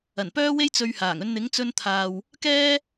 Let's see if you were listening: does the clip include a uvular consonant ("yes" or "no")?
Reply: no